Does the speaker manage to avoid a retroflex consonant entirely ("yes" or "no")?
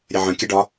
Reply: no